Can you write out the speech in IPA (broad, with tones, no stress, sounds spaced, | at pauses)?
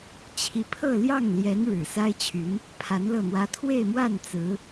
t͡ɕʰ i˧˥ pʰ ɤ˥˧ l j ɑ˥˩ ŋ l j ɛ˧˥ n ɻ ɻ̩˨˩ s a˥ ɪ̯ t͡ɕʰ y˧˥ n | pʰ a˧˥ n l ɤ˥˩ n̪ w ä˥ t̪ʰ w e˥˧ ɪ̯ m w a˥˩ n t͡s ɹ̩˧˥